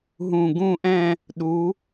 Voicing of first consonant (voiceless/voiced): voiced